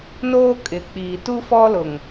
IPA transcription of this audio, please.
n oː˦ kʼ ɪ˨ k͡p iː˨ t u˦ f ɔ˦ l ʊ˨ ŋ

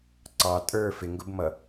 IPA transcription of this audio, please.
ǀ ɑ tʼ ə˞ f ɪ ŋ ɡ ʊ b m ʌ

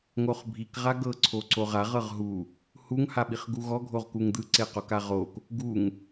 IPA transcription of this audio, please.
ŋ o χ bʱ i k ʁ a ɡ ɤ ǀʰ o ǀ o ʁ a ʁ ɤ ʁ ɦ u | h u ŋ h a ɓ i χ ɡ u ɣ ɔ ɡʱ o ʁ k u ŋ d̪ ɯ ǀ e q o k a ʁ o k | ɡ u ŋ

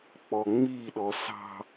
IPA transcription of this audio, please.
k͡p ɔ ŋ͡m i ɗ ɔ s ɑ̤

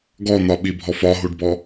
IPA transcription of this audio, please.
ɡ ɔ n̪ ɒ ɓ i bʱ ɔ f ɒ ɦ u ɖ b ɔ

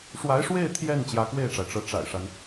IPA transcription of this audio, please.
ʂ w a˧˥ ɪ̯ ʂ w e˥˧ ɪ̯ t̪ʰ j ɛ˥˩ n t͡ɕ j ä˧˥ k w e˥˩ ɪ̯ ʈ͡ʂ a˩ ɪ̯ ʈ͡ʂ ɤ˧˥ ʈ͡ʂ a̰˨˩ ɪ̯ ʂ a˦ n

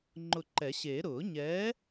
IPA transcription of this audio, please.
ŋ͡ǃ ʊ˧˩ ǃ ɛ˨˩˦ ɕ eː˨˩˦ ɾ ʊː˨˩˦ ɲ ɛː˨˥

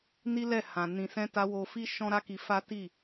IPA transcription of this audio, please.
n i˦ l ɛ˦˨ h ã˨ n ĩ˨ s ɛ̃˧ t a˧ w o˧ f i˦ ʃ ɔ̃˦ ɾ a˦ k i˧ f a˦ t i˦˨

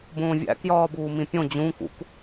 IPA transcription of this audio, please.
b õː vʲ æ̰ k j ɒː b uː m ĩ pʲ õ d͡ʑ ũ k ṵ k

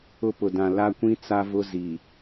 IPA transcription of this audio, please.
ʊ˦ p ʊ˨ d ã˨ l a˦ kʷ ĩ˦ t͡s a˦ v ʊ˦ z i˨

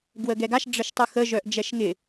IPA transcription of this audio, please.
ɡ w ə ɡ ɛ ɡ a ʃ ɖ͡ʐ ə ʃ tˤ ɯ x ə ʒ œ ʔ d͡ʒ ɛ ʃ ŋ ɪ

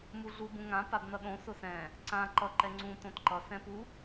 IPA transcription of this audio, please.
m u ɮ u b ũ ŋ ã p a b n ʌ ɗ õ s ʊ s ɛ̃ | ǀ ã ǃ ʌ ǃ ɛ ŋ͡ǀ ũ t õ t ǃ ʌ s ɛ̃ p u

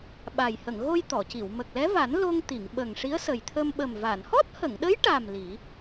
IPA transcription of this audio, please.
ɓ a˨˩ j h ə˨˩˨ ŋ ɣ o˧ j t̪ ɔ˨˩˨ c i˨˩˨ w m ə˨˩ k̚ l ɛ˧˥ v a˨˩˦ n l o˧ ŋ t̪ i˨˩˨ ŋ ɓ ə˨˩ ŋ ʂ i˧˥ ə̯ s ə˨˩ j t̪ʰ ə˧ m ɓ ə˨˩ m v a˨˩˨ n h ɔ˦˥ t̚ h ə˨˩˨ ŋ ɗ ə˧˥ j ʈ a˨˩ m l i˨˩˦

